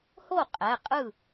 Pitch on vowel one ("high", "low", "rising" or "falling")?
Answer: falling